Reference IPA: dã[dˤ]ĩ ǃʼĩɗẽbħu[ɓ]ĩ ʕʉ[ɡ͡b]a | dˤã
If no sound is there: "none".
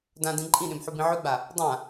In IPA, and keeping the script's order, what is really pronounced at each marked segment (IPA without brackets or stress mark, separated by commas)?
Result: d, b, ɡ͡b